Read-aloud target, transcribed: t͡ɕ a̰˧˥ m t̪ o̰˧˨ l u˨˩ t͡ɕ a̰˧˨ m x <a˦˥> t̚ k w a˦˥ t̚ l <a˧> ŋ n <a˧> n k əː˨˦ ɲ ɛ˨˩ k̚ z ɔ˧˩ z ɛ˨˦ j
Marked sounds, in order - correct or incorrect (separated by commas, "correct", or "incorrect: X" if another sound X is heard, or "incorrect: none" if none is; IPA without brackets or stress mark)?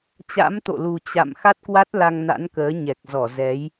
correct, correct, incorrect: a̰˧˥